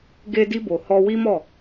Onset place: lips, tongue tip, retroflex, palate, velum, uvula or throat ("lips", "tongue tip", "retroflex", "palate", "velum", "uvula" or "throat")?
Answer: velum